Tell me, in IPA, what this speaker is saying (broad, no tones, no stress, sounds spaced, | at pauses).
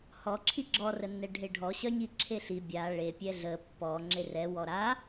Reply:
h ɔ ǁʰ i ɡ͡ǁ ɔ r ə nː ɛ ɖʱ e ɖʱ ɔ ɕ œ ɲ i ǁʰ e ɬ i bʲ a ɭ e pʲ ɛ ɮ ə pː ɔ ŋ͡ǁ e r ɛ w ɔ ɾ a